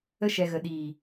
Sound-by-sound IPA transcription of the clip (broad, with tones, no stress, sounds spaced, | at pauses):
ə˧ ʃ ɛ˨ ɣ ə˨ ɗ iː˨